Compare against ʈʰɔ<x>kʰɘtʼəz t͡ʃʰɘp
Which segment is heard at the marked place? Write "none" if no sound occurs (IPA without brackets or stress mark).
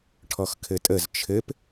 x